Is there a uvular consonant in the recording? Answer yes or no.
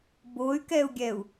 no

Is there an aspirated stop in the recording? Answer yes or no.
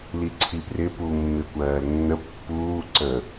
yes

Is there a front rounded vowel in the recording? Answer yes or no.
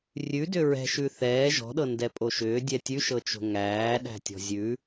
yes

